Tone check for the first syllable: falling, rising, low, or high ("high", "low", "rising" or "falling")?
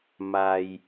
low